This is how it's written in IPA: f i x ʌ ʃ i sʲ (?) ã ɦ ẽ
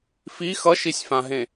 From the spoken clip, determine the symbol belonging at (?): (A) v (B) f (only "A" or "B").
B